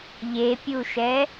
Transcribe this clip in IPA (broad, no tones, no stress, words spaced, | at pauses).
ʎepʲuʃɛ